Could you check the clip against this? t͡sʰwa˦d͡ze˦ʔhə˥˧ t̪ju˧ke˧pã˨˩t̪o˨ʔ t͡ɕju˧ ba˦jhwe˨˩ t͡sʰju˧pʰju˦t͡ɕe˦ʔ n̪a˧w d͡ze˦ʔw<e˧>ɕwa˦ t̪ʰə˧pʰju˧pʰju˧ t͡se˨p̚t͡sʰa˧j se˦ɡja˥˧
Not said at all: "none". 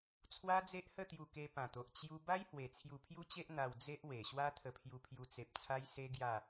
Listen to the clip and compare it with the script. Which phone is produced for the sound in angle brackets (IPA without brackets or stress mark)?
e˨˩